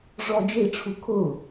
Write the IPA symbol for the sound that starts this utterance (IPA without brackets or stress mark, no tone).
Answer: ʐ